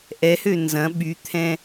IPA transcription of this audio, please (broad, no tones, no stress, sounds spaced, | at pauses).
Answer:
ʔ ɛ h ø n z ɐ̃ ɓ y t̪ʰ ɛ̃